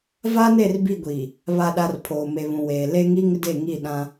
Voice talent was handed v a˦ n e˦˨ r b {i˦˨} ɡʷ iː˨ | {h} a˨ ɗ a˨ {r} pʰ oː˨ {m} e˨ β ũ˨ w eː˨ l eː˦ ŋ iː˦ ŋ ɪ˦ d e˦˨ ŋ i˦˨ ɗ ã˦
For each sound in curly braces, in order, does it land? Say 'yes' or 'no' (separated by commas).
yes, no, yes, yes